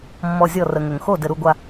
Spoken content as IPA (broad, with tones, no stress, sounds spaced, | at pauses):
mː ɔ˧˩ zʲ ɔ˥˩ r ə˩ ŋ ʏ˩ ŋ x o˥˩ d ɘ˩ ɾ u˧˩ ɡʷ a˧˩